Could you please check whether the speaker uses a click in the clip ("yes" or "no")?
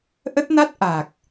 no